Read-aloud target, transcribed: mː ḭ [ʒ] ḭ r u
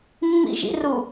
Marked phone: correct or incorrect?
correct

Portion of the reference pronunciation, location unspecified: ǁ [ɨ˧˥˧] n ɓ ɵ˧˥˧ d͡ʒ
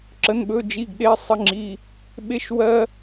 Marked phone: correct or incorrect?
incorrect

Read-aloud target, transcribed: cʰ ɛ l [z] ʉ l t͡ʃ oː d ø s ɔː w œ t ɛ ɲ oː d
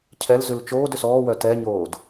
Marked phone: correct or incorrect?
correct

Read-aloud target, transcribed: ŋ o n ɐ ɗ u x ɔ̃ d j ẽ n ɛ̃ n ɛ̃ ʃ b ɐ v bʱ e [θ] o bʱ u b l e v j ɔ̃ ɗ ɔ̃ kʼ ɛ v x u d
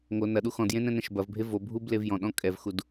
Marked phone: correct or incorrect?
incorrect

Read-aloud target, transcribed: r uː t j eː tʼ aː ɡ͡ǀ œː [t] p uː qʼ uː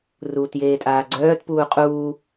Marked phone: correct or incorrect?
correct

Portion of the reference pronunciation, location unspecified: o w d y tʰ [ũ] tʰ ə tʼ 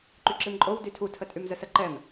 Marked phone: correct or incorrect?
incorrect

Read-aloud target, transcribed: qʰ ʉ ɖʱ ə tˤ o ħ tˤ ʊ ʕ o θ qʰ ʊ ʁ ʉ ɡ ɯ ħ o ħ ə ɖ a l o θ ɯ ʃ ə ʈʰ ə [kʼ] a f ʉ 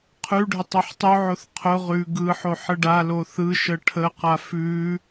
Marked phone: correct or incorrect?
incorrect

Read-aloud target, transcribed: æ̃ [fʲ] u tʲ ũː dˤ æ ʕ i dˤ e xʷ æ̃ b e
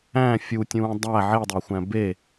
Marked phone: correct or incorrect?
correct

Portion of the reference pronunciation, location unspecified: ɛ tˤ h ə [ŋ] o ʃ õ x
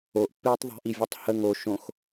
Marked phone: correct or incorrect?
correct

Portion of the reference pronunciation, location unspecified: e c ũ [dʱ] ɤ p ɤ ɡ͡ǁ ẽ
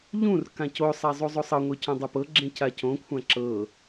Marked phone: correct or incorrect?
incorrect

